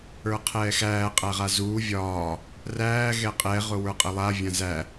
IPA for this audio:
ə˞ qʰ ɛː x æː qʼ æ ʁ a z uː vʲ ɒː | r æː ɣ ɛ qʼ ɛ ʁ ʊ w ə˞ qʼ ə lˠ a vʲ ã z æ

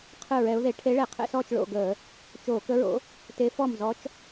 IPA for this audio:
qʰ ɯ˥˩ ɹ ɛ˧˥ ʊ̯ ð e˧˥ ʈʰ e˧˥ ɭ ɛ˧˩˧ qʰ ɛ̰˥˩ s ɔː˥˩ t͡ʃ ɭ o̰˥˩ ɡ əː˧˩˧ | t͡ʃ oː˧˩˧ k ə˧˥ ɹ o̰˧˥ | t e˧˥ f ɔ˥˩ m z ɔ˧˥ t͡ʃ

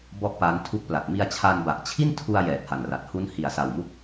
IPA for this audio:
b ɔ˥˩ ʔ p a˦˥ n tʰ u˦˥ k̚ p l a˨˩ t̚ m i˧ a̯ t͡ɕʰ a˧ n b a˨˩ ʔ t͡ɕʰ i˥˩ n tʰ u˧ a̯ j ɛː˨˩ t̚ h a˨˩ n r a˨˩ t̚ h u˦˥ n h i˨˩ a̯ s a˨˩ w m u˦˥ k̚

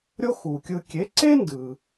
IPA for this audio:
ɾʲ o˥ x u˩ kʲ ɯ˧ kʲ e˩˥ ǀ e˥ n d ɯ˩

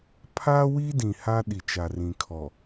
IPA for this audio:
pʰ a˦ w i˦ d ĩ˨ h a˦ ɗ i˨ t͡ʃ a˨ r ĩ˨ kʰ ɔ˨

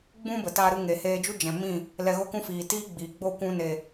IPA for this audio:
ɡ͡b ũ˦ b ə˨ t aː˧ ɾ ɨ˧ ŋ e˨ h eː˧ d͡ʒ u˦ d͡ʒ ɛ̃˨ m ĩ˦˨ | l ɛ˧ ɣ o˦ k ũ˦ f iː˨ t iː˦ ɡ͡b iː˨ ɡ͡b o˦˨ kʷ ũ˧ n e˨

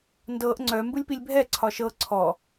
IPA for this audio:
n d ɤ ʔ ŋ͡ǀ œ m b ɯ lʲ p i lʲ bʱ ɛ ǀʰ ɒ ʃ ɤ ǀʰ ɔ

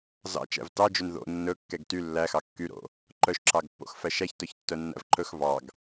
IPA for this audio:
z ɑ̰ t͡ʃ æ̰ v t ɑ d͡ʒ ɵ n ð o̰ nː ɵ kː ɛ ɡ t y lː æ x ɑ kː y ɾ o̰ | ǃ œ ʃ ǁ ɑ ɡ pː o̰ x f æ ʃ æ ç t œ ç tː œ nː æ̰ v ǃ ɵ x v ɑ ɡ

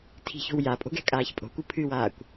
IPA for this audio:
tʰ i̤ ç o̤ w j a pʼ o̤ ɡ ɛ̤ kʼ aː ç pʼ o̤ kʷ ɨ pʰ ɨ w aː kʷ

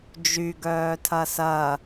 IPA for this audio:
d͡ʒ y ɡ œː tʰ ɐ s ɐ

